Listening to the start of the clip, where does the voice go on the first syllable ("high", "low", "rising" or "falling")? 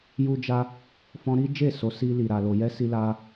high